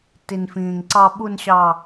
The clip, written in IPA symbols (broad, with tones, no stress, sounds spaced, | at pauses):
t i˨ n f ĩː˨ ŋ ǀ ɑ˦ ɓ u˦ n ɕ ɑ˦